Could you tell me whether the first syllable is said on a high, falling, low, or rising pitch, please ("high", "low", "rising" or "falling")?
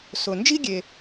low